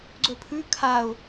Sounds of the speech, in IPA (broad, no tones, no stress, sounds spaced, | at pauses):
ɡ͡ǀ ɵ pʰ ʉ kʰ a ʊ̯